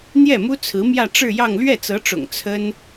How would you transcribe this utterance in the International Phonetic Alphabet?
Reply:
n̪jɛ˥˩mu˥t͡sʰɹ̩˧˥ mjä˥˧ʈ͡ʂɻ̩˥˧jɑ˥˧ŋ lɥɛ˥˩t͡sɤ˧˥ʈ͡ʂʊ̰˨˩ŋ t͡sʰə˥n

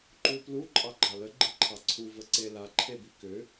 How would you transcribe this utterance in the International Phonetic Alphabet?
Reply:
ǃuplu ǃʼɑɡ͡ǃɑlə ɡ͡ǃiǃʰɑǀʰu vəǀela ǃʰebikʏ

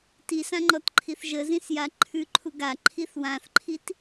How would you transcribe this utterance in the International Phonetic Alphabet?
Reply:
tisãŋ͡ǃɔtǃʰiθ ʒəzĩsja ǃʰʉǃʰu ɡaǃʰiθ wãθǃʰit

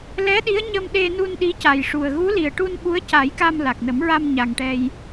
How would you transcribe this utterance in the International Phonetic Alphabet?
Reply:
lɛ˧˥ɗi˧˥ə̯ ɲə˧mɗe˧nu˧n ɗi˧˥ca˨˩jʂu˨˩ə̯ ɣu˧˥li˨˩ə̯ʈu˧n ɓu˧˥ə̯ca˨˩˦jka˧m la˨˩k̚nə˨˩˦m ɹa˧m ɲa˨˩ŋʈɛ˧j

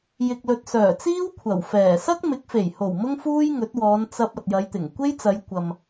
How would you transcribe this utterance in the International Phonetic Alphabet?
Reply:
jɪ˨k̚lɵ˨t̚sœː˨˩t͡siː˥w kʷʰɐ˨˩wfɛː˨˩ sɐ˥k̚mɪ˨˥k̚fe˨˩jho˨˩w mʊ˥ŋfuː˥jŋɵ˨˥t̚wɔː˨˧n t͡sɐ˧p̚ ɐ˨t̚jɐ˨˧jt̪ɪ˨˩ŋ kʷe˥jt͡sɐ˨˧jkʷɐ˨m

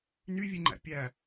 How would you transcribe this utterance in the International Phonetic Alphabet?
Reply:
nyvʲeŋ͡ǃæ̰ pʲæ

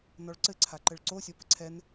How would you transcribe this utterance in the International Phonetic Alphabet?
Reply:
nɔɭǀɘ ǀʰaǃɘɭǀo sʲɔpɘǀʰɛn

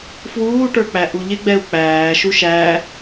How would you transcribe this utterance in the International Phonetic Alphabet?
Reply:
fwuːʈə˞k͡pæ ʔuʎɪɡ͡bɛu̯ k͡pæː ʃuʃæ

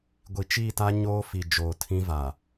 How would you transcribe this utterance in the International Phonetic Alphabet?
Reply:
ɡʷi˨t͡ʃiː˦˨ta˦ ɲoː˦fi˨ d͡ʒoː˨tʰĩ˦va˨

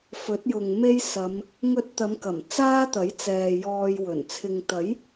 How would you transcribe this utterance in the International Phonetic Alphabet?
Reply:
fɵ˨˥t̚jʊ˨ŋme˥j sɐ˨˧m | ŋɵ˧t̚t̪ɐ˨˧mkɐ˨˩m t͡saː˥t̪ɐ˨˥jt͡sɛː˨ jɔː˧jwɵ˨˩n t͡sʰɪ˨ŋt̪ɐ˨˥j

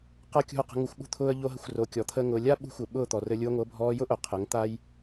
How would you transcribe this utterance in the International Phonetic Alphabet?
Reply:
qa˦kʲṳ˦˨ə̯qə̤˧ ŋu˧xʷɓṳ˦t̪ʰʊː˦ə̯ ʎo˦ɦə˧xʷro˨˦ kʲɔ˨˦ t̪ʰəː˦ŋʊː˧ lʲa˦ ɓṳ˧xʷɘ˨ ɓʊː˦˨t̪ɔ˨rɘ˧lʲu˧ə̯ ŋʷɤ˨˦bʱɔː˧jʊ˦ʔʊ˨ qʰɘ˨˦ŋt̪a˦j

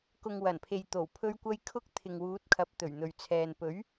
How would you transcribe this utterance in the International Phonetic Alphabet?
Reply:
kʊ˨ŋwɐ˨˩npʰe˨jt̪o˨˩w pʰɵ˧ɥkʷɐ˧j kʰʊ˥k̚t̪ʰɪ˨ŋwuː˨˥t̚ kʰɐ˨˥p̚t̪ɵ˨˩ɥn̪ɵ˨ɥt͡sʰɛː˨n pɵ˨˥ɥ

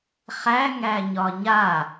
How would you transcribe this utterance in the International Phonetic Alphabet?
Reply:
χæ ŋæɲɒɲa

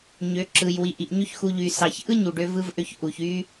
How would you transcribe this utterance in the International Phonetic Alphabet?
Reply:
ɲø˨˦ǁɯ˨j wi˨ʔi˨ʔ ɲy˦çxu˧ ʎy˨ sɑ˨çʔɯ˦ ɲu˨ɖø˧ vɯ˦vʔø˦ç ʔu˨çy˦

